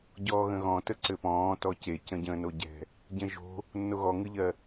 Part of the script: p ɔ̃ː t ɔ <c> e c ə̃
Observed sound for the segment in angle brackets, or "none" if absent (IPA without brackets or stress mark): c